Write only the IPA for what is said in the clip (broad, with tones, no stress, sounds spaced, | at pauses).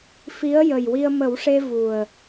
f i˧˥ ə̯ j ə˨˩ j w i˧ ə̯ m ə˨˩˦ w ʂ e˧ v u˨˩ ə̯